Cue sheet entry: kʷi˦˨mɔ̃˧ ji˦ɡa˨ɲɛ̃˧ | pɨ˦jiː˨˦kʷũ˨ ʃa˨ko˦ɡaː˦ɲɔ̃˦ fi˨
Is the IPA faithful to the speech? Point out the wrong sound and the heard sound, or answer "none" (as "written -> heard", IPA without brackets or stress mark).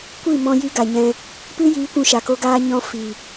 none